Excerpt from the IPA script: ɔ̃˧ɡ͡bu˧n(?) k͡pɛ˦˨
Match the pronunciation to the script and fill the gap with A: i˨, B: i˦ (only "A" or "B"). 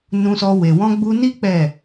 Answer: B